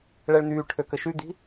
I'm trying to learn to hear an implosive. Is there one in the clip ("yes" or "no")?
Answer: no